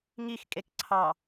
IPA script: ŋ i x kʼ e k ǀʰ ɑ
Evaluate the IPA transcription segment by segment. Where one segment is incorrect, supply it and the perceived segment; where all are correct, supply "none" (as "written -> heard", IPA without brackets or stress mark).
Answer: none